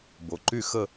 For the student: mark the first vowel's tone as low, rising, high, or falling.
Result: low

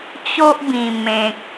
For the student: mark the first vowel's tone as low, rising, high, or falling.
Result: high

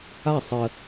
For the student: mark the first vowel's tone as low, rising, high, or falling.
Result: falling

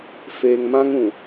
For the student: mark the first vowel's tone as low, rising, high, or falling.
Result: low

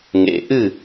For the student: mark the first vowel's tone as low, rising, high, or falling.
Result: low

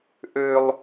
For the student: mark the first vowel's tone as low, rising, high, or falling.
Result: low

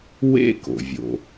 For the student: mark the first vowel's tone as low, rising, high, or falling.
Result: high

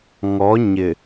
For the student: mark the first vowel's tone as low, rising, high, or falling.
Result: rising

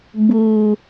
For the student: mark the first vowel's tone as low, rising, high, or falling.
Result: high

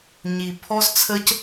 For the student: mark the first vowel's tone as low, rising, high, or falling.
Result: low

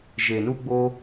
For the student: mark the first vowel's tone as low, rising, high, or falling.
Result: low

